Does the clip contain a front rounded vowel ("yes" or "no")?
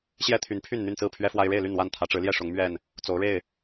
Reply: yes